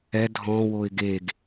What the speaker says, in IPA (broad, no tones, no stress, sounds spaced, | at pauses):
ɛ dʱ ɔ̃ w o ɪ̯ ɡ e ɡ